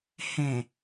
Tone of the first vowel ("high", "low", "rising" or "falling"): low